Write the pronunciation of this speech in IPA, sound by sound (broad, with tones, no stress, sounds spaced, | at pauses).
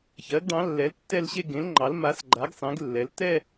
ç ɜ˩˥ ɡ ɖ ɑ̃˩˥ lː ɛ˩˥ l tː ɛ˥˧ l ɕ e˥˧ ɡ ẽ˩˥ l ŋ͡ǃ ɑ˩˥ l m a˩˥ s ɡ͡ǃ a˩˥ ɡ sˤ ẽ˩˥ ɡ lː ɛ˩˥ l t ɛ˥˧